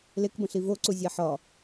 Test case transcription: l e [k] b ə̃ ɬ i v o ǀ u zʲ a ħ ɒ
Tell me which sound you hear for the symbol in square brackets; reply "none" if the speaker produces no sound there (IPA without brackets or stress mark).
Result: k